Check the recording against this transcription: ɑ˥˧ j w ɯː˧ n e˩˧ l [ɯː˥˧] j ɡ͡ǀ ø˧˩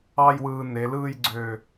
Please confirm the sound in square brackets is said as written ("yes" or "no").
yes